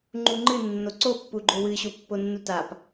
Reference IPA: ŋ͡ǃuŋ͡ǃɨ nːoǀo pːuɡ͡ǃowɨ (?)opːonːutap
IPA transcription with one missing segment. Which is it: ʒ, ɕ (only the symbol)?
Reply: ɕ